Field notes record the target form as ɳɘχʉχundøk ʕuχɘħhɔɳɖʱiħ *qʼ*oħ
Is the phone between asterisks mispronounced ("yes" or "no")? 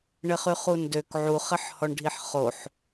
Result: yes